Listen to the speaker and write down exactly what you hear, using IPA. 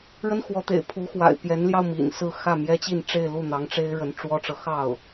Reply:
ɻ ə˥ n x w ɔ˧˥ t̪ ḛ˨˩ ɪ̯ pʰ u˧˥ x w a̰˨˩ ɪ̯ p j ɛ˧˥ n l j ɑ˧ ʊ̯ m ḭ˨˩ n s ɹ̩˥˧ x ä˥˩ m j ɛ˥ t͡ɕ i˥˧ n ʈ͡ʂ e˥˧ ɪ̯ l u˥˩ n̪ ɑ˧˥ ŋ ʈ͡ʂ e˥ ɪ̯ ɻ ə˧˥ n ʈ͡ʂ w ɔ˥ ʈ͡ʂ ɤ˨ x ɑ˥˩ ʊ̯

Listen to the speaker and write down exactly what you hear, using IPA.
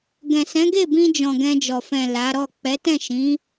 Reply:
ɡ ɛ̃˨ s ɛ̃˨˦ ɡ e˦˨ b ĩ˧ d͡ʒ ɔ̃˨ ɡ ɛ̃˧ d͡ʒ ɔ˨ f ɛ̃˨ l a˨˦ ɾ ɔ˦˨ k͡p ɛ˨˦ t ɛ̃˦˨ ʃ ĩ˨˦

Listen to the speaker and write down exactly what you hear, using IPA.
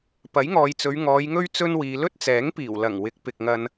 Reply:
p ɐ˨˥ j ŋ ɔː˨ j t͡s ɵ˨˧ ɥ ŋ ɔː˨˧ j ŋ ɵ˥ ɥ t͡s ɵ˥ n w iː˨˧ l ɵ˥ t̚ t͡s ɛː˨˥ ŋ p iː˨˩ w l ɐ˨˩ ŋ w ɪ˨˥ k̚ p ɪ˨ k̚ ŋ ɐ˧ n

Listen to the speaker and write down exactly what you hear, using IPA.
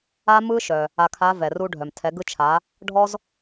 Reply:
a˥ m ɯ˥ ʃ œ˩ | a˧ kʰ a˧˥ v ɛ˩ r u˧ ɖʱ œ˩ m tʰ ɛ˩˧ ɡ ɯ˧ t͡ʃʰ a˩˧ | ɖʱ ɔ˥ z

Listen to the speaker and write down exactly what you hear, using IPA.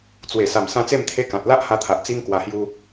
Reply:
t͡s w e˨˩ s a˨˩ m s ã˧ t͡s e˥˧ m t̪ʰ e˦ k ã˨ t̚ l a˦ ʔ h a˧ t̪ʰ a˨ ʔ t͡s i˦ ŋ k w a˧ h j u˦

